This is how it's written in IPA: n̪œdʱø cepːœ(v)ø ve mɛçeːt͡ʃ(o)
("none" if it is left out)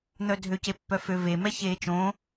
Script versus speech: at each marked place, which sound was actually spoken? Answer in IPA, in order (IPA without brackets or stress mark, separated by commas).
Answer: f, õ